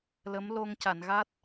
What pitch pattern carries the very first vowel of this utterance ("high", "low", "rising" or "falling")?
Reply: rising